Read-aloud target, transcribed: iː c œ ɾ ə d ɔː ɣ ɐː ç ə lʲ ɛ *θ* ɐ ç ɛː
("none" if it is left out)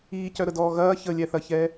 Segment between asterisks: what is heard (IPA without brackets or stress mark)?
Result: θ